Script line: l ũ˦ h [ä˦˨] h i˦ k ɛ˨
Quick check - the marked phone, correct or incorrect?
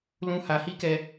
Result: incorrect